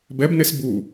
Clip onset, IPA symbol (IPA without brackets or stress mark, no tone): b